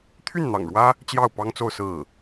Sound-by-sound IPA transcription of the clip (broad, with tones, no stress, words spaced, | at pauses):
t̪ʰy˥˩nn̪ɑ̰˨˩ŋɻwä˥ | t͡ɕjɑ˥˩ʊ̯pɑ˥ŋt͡so˥˧ʊ̯ sɹ̩˥˩